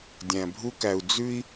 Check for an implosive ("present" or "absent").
absent